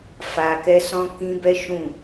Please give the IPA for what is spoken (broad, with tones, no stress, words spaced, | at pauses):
fa˧kɛ˦sɔ̃˦ kĩ˦bɛ˦ ʃũ˦˨